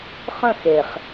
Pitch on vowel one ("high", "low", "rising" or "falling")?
falling